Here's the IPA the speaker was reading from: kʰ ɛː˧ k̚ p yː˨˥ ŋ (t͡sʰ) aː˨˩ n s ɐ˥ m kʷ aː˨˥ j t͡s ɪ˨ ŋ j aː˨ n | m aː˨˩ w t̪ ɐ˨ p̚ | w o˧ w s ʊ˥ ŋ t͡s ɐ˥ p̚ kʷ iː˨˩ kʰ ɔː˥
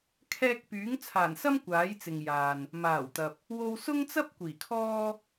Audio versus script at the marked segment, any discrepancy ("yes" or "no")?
no